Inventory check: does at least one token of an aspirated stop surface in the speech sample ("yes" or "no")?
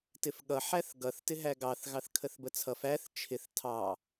yes